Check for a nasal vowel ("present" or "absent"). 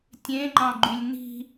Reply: present